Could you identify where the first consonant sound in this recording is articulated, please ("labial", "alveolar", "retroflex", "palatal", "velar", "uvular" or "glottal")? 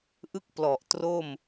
glottal